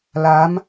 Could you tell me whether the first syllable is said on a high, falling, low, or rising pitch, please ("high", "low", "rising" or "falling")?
rising